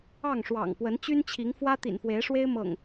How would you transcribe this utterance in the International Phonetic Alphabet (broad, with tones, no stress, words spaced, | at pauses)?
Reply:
ɑ˥˨ŋʂwɑ̰˨˩ŋpwə˨˦n t͡ɕy˦nt͡ɕʰi˨˦ŋfwä˦ t̪ḭ˨˩nfwe˨˦ɪ̯ʂwe˦ɪ̯ mɤ̰˨˩ŋ